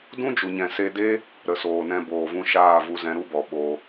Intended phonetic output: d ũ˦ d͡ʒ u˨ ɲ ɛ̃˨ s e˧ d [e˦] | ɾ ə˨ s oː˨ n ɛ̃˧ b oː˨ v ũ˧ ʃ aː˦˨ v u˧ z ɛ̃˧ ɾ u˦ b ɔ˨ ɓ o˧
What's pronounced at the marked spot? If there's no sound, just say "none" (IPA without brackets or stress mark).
e˦